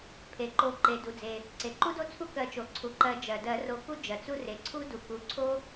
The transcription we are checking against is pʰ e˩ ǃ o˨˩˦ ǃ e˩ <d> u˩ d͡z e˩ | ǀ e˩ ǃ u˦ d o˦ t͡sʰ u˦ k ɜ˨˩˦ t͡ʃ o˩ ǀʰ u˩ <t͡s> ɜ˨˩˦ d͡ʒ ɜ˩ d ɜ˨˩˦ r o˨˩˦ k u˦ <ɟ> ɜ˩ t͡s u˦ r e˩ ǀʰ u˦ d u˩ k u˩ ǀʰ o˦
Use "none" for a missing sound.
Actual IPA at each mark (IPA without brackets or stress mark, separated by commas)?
d, ǃ, d͡ʒ